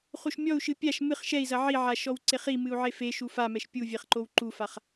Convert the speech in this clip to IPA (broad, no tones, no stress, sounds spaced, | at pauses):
χ u ʃ mʲ ɔ u̯ ʃ ɨ pʲ a ʃ m ɨ χ ʃ ɛ i̯ z ɐ ʕ i ʕ a ʃ ɔ w ǀ e χ i m ɨ u̯ ʕ e f e ʃ u f a m ɛ ʃ pʲ u vʲ e χ ǃ o w ǃ u f a χ